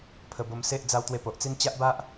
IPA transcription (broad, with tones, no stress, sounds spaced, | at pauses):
pʰ ə˧ b o˧ m s e˦ ʔ d͡z a˧ w t̪ w e˧ p o˨ ʔ t͡s i˧ n t͡ɕ a˦ ʔ b a˦ ʔ